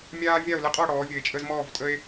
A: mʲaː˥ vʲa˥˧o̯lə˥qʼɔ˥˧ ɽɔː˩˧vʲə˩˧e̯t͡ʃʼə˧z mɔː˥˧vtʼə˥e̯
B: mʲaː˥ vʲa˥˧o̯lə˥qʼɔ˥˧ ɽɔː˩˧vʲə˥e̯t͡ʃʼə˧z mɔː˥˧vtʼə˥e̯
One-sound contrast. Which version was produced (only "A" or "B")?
A